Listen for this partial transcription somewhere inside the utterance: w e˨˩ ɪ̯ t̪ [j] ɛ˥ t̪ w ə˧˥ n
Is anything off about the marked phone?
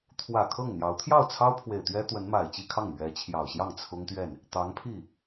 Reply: yes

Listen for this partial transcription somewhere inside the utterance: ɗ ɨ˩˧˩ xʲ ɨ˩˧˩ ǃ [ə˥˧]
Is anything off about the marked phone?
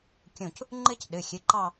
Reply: yes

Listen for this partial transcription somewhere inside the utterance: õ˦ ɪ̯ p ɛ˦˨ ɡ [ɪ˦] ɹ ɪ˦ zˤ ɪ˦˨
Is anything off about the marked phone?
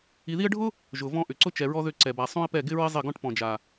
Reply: no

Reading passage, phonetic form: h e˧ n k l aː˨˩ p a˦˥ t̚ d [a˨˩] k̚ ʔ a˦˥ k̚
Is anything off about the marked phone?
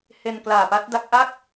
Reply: yes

